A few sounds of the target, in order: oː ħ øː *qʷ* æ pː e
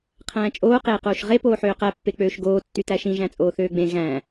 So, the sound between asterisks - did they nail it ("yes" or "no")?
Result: no